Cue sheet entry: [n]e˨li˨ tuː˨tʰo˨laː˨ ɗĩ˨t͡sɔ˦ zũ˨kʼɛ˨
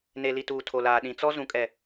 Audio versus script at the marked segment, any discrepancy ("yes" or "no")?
no